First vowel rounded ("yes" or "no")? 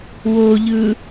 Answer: yes